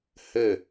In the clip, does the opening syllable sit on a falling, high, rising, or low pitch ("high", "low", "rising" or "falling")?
falling